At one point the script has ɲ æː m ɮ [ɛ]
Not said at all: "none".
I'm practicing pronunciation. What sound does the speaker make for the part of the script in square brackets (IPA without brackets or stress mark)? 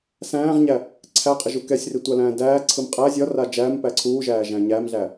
æ